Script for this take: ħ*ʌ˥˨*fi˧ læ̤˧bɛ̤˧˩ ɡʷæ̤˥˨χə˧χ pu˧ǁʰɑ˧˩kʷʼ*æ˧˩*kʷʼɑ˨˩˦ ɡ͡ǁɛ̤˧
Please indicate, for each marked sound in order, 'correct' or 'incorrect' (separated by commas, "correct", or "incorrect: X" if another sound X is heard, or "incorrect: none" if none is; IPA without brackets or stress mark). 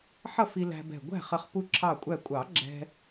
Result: correct, correct